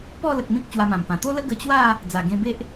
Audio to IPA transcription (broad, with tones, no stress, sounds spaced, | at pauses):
p ɔ˥˧ l ə˨ k̚ m ĩ˦ k̚ t͡ɕ w a˧ m ã˨˩ m p ã˨˩ t̪ o˦ l ə˦ ɡ ə˧ t͡ɕ w a˥˧ | d͡z a˨˩ ɡ ẽ˧ b e˦ ʔ